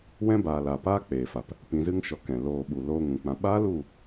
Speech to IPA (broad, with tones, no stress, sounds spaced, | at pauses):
w ɛ̃˦ b aː˨ l a˨ p aː˦ k͡p eː˨ f a˨ p | p ĩ˨ z ɨ˧ ŋ ʃ ɔ˧ k ɛ̃˨ l oː˧ ɓ u˨ l oː˧ ŋ ũ˨ k͡p ã˨ ɓ aː˦ l u˦˨